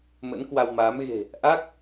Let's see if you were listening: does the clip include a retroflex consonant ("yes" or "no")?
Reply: no